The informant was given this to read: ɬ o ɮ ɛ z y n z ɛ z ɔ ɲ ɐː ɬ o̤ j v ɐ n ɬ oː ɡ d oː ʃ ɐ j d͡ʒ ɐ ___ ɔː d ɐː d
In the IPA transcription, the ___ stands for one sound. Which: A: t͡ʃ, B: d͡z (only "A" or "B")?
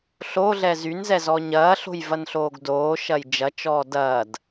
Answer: A